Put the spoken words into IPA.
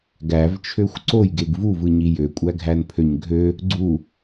ɡ æ v t͡ʃʰ ø xʷ ǀ o j ɡ e ɡ v u v ɯ ɲ i j ø kʷʼ æ ɡʱ æ n pʰ ø ɲ ɡʱ ø | ɡ͡ǀ u

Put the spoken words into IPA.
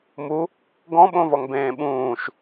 m u | ɡ ɔ̃ ɓ õ v ɔ ŋ b ẽː ɓ ũː ʃ

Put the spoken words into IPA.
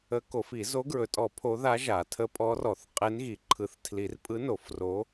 ə˧˥ k o˨˩˦ f i˨˩˦ z o˧˥ ɡ ɹ ɵ˨˩˦ tʼ ɔ˨˩˦ pʰ o˧˥ ð a˧˥ ʒ a˨˩˦ tʰ ə˧˥ pʼ ɔ˧˥ r ɔ˨˩˦ θ qʼ e˧˥ n ɣ i˨˩˦ ǃʰ ɯ˨˩˦ θ tʰ l i˨˩˦ r pʼ ɯ˧˥ n o˨˩˦ f r o˧˥

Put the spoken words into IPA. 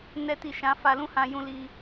n ɛ˦ t i˦˨ ʃ ã˨˦ f a˧ l ũ˦ h ã˧ j ũ˧ l i˧

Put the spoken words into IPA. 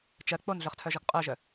t͡ʃ ɜ k͡p o n ɮ œ χ tʰ œ ʒ ɔ ɡ qʼ œ ʒ œ

